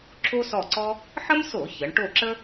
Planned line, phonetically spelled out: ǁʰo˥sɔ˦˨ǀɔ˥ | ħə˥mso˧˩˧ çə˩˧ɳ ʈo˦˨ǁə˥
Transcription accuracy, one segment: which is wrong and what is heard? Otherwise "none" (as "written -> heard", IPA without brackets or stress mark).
none